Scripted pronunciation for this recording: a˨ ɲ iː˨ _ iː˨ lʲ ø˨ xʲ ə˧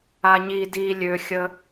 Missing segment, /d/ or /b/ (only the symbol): d